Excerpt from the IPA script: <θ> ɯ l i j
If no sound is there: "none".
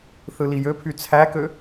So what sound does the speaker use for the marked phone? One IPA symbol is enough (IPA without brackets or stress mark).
θ